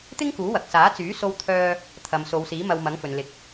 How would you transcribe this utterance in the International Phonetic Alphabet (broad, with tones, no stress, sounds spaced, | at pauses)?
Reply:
t̪ ɪ˥ ŋ k uː˨˥ w ɐ˨ k̚ s aː˨˥ t͡s yː˨˥ s o˧ w t̪ʰ œː˧ | t̪ʰ ɐ˨ m s o˨˧ w s iː˨˥ m ɐ˧ w m ɐ˨˥ ŋ f ɵ˨ n l ɪ˨˥ k̚